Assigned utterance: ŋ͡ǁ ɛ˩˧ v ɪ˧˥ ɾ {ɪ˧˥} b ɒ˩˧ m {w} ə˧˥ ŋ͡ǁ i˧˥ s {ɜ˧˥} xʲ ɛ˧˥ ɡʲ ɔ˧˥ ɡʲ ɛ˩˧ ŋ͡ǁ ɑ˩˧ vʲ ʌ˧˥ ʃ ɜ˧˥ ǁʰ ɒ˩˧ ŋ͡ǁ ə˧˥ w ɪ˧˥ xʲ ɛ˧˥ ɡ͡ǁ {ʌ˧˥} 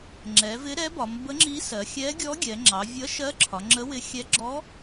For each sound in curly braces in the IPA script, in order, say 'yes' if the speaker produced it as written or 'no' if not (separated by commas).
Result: no, no, no, no